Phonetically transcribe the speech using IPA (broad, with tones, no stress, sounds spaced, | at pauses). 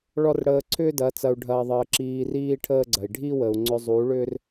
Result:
ɭ ɔ˦ r ɽ əː˧ ǀʰ ʏː˦ d ɐ˨˦ t͡s ɐ˧ u̯ ɖʱ ɐː˧ ðˤ əː˧ ǁ iː˧ r iː˦ ʈʰ əː˦ ɡ͡ǀ ɐ˨ i̯ ɖʱ i˦ w ə˨ u̯ ŋ͡ǀ ʏ˧ zˤ u˨˦ ɭ ʏː˦ r